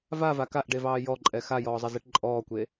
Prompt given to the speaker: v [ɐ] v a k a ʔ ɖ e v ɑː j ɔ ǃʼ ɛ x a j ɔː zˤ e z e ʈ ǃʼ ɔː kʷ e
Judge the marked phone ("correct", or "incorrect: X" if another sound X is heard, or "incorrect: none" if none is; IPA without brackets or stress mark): incorrect: a